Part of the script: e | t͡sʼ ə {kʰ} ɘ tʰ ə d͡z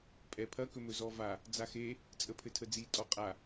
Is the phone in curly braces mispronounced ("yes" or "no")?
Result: yes